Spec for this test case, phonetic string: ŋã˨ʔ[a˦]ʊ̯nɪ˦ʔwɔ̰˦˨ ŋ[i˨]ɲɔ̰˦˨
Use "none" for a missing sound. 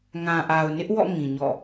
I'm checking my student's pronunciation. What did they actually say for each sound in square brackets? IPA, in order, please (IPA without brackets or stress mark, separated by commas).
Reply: a˨, ĩ˨